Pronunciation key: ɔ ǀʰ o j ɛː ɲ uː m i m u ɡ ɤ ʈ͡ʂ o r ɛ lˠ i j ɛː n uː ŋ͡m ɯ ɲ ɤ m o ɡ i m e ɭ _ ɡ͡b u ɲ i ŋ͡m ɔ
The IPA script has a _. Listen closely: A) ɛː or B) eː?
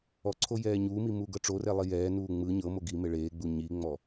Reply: B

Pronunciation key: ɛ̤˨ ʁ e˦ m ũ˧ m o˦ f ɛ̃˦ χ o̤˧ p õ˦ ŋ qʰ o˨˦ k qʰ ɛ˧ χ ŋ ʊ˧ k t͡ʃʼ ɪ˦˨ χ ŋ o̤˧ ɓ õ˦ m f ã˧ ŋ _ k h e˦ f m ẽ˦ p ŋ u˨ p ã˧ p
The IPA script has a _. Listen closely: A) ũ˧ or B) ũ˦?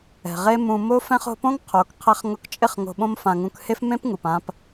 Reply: A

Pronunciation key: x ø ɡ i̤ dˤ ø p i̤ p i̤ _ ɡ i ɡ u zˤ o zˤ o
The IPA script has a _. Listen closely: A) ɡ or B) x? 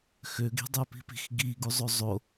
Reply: B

